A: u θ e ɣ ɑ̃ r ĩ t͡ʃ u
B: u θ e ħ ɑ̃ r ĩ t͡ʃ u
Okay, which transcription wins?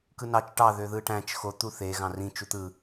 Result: A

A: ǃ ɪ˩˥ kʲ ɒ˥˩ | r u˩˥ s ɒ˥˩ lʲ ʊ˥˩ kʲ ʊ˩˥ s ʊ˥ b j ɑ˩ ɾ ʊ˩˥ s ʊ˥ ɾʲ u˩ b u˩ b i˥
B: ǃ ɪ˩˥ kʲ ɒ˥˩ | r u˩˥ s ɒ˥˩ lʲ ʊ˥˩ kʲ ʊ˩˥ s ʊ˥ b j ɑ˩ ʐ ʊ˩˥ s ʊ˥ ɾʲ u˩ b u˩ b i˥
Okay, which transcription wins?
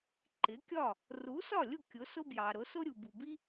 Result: A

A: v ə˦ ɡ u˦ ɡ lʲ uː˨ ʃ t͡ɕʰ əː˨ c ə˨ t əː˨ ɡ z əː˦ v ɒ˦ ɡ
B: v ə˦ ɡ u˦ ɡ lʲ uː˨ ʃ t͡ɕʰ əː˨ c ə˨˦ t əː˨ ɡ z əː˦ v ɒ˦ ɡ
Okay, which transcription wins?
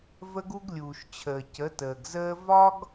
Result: B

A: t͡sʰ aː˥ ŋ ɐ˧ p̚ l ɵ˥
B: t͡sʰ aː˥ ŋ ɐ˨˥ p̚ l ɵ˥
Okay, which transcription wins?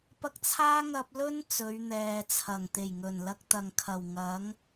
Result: A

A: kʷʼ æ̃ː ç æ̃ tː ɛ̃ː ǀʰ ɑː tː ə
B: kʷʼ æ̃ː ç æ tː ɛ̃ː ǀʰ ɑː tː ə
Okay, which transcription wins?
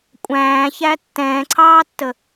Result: B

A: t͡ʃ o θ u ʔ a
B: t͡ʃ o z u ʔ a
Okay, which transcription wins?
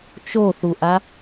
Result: A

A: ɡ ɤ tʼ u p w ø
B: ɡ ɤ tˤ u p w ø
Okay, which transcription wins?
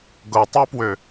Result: B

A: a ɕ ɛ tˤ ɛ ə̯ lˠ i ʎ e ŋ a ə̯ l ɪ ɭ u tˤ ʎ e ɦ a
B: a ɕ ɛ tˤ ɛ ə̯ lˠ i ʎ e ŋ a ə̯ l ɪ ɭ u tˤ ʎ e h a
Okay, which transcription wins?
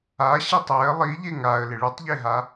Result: A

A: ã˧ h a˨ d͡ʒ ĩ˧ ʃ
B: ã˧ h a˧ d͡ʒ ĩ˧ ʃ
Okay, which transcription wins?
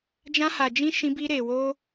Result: A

